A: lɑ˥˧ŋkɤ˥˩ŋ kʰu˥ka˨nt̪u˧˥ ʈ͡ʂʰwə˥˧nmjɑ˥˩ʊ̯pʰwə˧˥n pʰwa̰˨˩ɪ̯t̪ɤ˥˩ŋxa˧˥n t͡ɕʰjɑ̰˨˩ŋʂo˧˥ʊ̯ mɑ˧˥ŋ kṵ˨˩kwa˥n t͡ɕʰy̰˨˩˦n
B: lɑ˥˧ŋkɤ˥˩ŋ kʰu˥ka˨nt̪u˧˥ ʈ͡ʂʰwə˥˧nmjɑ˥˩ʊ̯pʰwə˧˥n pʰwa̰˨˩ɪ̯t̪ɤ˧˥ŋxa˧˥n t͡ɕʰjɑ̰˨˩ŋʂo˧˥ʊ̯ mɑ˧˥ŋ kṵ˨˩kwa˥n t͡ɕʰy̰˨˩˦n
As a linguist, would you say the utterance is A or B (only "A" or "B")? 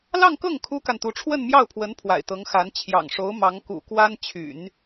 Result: B